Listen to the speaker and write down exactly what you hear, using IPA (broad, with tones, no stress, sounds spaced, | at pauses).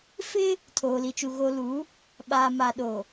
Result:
f ɪ˦ | tʰ oː˨ l i˨ t͡ʃ u˨ ɣ o˨ l u˨˦ | ɓ aː˨ m a˨ ɗ o˨